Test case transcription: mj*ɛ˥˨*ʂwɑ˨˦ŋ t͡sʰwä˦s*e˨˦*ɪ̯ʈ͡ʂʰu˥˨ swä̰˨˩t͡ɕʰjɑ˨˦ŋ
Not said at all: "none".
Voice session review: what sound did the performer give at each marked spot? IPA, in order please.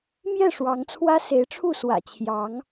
ɛ˥˨, e˨˦

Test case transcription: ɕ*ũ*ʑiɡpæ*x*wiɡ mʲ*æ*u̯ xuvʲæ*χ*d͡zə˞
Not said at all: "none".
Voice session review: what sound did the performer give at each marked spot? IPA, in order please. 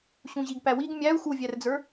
ũ, none, æ, r

